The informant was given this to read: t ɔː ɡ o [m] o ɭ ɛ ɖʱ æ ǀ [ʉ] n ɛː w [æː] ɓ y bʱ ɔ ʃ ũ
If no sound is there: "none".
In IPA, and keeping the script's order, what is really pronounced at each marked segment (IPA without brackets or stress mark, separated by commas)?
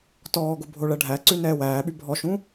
bʱ, ʉ, æː